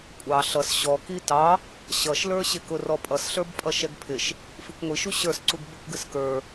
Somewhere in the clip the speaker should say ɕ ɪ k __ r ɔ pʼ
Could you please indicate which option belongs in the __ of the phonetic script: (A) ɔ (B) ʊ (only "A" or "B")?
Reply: B